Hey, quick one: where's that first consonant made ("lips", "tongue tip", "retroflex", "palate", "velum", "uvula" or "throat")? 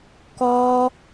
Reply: velum